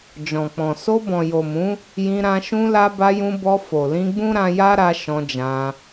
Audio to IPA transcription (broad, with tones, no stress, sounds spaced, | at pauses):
d͡ʒ ɔ̃˨ k͡p ɔ̃˨ s o˧ b ɔ̃˨ j o˨ m ũ˨˦ | j ĩ˧ ɾ ã˧ ʃ ũ˧ l a˧ b a˧ j ũ˧ b ɔ˧ f o˨ l ĩ˧ ɡ͡b ũ˦ ɾ ã˧ j a˦ ɾ a˧ ʃ ɔ̃˧ d͡ʒ ã˧